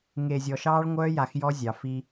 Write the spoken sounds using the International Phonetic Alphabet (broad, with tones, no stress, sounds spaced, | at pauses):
ŋ e˨ zʲ ɔ˨ ʃ ɑː˦ ɭ ŋʷ œː˦ j a˨ x j ɔ˦ zʲ ɑ˨ f i˦